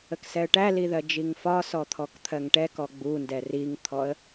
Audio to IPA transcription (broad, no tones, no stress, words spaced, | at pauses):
əksɛə̯ʈæli ðɜd͡ʒiŋfɒsɔ t̪ʰɔkt̪ʰɜŋʈɛkɔ ɡ͡bundɛ riŋt̪ʰɔə̯